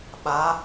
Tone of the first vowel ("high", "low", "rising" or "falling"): rising